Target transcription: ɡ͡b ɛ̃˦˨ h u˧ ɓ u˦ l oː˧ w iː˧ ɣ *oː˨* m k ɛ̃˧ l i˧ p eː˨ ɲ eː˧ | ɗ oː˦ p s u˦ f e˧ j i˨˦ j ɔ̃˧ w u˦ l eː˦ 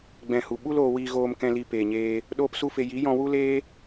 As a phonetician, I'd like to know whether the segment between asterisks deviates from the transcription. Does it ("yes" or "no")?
yes